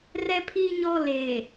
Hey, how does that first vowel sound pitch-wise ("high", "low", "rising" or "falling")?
high